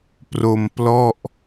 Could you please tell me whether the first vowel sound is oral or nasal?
oral